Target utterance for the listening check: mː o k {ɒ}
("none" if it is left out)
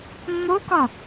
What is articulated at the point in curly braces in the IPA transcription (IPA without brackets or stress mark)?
ɒ